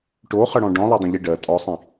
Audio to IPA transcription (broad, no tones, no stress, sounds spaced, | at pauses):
ʈ o χ ə ɽ ɔ̃ ɖ ɔ̃ lˠ o dˤ ə̃ ʎ i ɖ ɜ tʼ ɔ sˤ ĩ